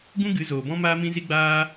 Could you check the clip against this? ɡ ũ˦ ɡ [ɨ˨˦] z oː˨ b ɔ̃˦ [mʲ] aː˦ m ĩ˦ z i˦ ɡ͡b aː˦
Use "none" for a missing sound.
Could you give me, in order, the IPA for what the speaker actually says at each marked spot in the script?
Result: ɨ˨˦, m

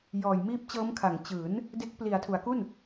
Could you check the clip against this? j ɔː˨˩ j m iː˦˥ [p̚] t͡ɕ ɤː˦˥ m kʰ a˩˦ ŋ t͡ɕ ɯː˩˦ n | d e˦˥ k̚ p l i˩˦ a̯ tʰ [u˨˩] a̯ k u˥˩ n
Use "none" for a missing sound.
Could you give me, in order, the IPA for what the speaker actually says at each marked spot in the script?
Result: p̚, u˩˦

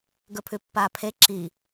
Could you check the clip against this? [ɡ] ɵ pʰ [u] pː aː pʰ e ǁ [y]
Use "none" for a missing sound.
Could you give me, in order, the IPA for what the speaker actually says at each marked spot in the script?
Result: ɡ, ʉ, i

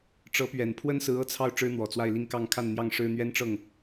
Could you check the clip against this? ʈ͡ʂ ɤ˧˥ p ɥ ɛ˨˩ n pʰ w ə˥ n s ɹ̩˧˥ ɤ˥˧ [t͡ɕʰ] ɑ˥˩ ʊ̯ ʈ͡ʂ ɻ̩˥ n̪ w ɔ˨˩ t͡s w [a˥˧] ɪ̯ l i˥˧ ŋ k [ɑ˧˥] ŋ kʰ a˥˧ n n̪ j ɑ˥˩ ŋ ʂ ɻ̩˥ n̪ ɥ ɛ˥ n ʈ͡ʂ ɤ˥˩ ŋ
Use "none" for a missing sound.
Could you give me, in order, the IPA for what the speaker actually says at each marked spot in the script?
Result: t͡sʰ, a˥˧, ɑ˥˧

